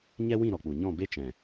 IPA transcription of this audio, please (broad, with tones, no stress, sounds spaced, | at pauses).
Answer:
ɲ ɛ˦ w ĩ˦˨ ɾ ɔ˨ k͡p u˨ ɲ ɔ̃˦˨ b e˧ t͡ʃ ɛ̃˨